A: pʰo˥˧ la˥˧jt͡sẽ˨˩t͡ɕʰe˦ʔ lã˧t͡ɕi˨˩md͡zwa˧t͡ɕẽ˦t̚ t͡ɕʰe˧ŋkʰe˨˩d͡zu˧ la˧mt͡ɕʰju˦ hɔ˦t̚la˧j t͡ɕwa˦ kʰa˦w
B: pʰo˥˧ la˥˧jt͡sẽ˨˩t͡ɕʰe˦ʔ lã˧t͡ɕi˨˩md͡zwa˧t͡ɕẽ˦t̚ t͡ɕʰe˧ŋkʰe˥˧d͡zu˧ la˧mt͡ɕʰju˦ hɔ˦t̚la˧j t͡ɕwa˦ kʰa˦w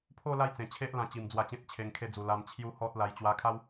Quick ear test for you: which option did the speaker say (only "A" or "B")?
B